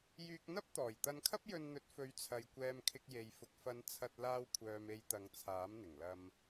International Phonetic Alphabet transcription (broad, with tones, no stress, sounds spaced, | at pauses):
j yː˧ k̚ n̪ ɐ˥ p̚ t̪ ɔː˨˩ j t̪ ɐ˧ n kʰ ɐ˥ p̚ j ɵ˧ n n̪ ɵ˨˥ t̚ f ɵ˨˧ ɥ t͡sʰ ɐ˨ j kʷ ɛː˧ m kʰ ɪ˧ k̚ j e˨ j f ʊ˨ k̚ f ɐ˨˧ n t͡sʰ ɐ˧ t̚ l aː˧ w kʷʰ œː˨ m e˧ j t̪ ɐ˨˧ ŋ t͡sʰ aː˨˥ m n̪ ɪ˨˩ ŋ l ɐ˧ m